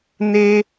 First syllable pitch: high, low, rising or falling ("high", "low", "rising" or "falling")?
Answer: high